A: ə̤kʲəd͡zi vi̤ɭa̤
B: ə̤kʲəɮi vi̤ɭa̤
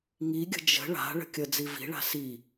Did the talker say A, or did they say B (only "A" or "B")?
A